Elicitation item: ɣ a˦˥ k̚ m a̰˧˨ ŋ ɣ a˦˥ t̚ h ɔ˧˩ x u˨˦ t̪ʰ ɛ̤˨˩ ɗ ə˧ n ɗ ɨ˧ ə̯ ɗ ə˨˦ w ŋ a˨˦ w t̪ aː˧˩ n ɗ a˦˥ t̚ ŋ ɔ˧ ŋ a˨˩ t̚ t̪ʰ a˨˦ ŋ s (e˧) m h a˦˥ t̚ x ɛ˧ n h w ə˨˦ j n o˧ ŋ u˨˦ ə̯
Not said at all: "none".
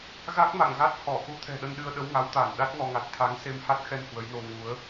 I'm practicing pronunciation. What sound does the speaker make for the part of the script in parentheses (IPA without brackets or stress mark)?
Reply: e˧